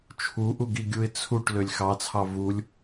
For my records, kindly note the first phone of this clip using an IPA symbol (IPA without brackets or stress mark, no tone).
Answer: t͡ʃʰ